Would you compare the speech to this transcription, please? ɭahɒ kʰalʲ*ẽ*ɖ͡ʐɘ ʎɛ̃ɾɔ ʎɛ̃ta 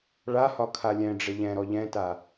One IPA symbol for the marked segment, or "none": ɛ̃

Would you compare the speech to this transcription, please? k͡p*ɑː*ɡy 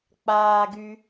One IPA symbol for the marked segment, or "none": aː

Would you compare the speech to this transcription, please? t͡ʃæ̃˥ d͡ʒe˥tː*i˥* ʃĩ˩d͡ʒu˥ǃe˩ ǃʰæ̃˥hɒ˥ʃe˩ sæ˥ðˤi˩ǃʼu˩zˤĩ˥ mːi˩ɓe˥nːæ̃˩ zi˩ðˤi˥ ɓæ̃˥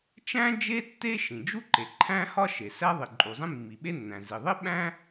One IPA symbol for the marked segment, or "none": e˥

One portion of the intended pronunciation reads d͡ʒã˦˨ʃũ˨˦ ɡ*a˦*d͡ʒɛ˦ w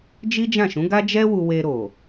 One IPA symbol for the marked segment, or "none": a˦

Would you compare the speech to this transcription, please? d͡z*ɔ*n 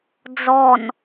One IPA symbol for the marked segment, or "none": ɔ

